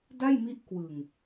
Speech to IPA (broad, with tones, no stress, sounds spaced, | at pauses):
d a˥˩ j m i˦˥ ʔ k w ɯ˨˩ ŋ